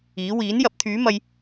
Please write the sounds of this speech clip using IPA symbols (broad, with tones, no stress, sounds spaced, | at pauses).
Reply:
iː˨˥ w iː˨˥ n j ɐ˨˥ p̚ t̪ʰ yː˨˥ m ɐ˧ j